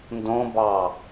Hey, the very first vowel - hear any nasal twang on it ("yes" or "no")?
yes